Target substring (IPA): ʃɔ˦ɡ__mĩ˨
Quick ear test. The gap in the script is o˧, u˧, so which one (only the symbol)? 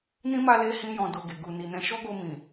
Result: o˧